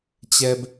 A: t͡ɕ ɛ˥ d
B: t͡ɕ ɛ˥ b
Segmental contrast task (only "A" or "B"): B